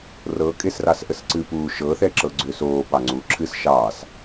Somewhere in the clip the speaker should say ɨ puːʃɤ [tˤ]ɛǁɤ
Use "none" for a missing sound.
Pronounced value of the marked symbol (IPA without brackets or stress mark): θ